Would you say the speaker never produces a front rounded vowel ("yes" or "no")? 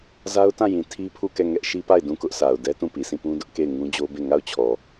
yes